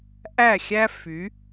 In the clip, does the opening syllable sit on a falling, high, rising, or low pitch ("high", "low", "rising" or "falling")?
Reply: falling